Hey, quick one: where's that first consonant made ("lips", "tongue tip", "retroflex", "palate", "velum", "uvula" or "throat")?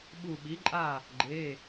lips